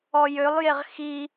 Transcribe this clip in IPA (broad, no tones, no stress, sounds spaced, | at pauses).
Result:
ɔ j ø lˠ j e ʁ x i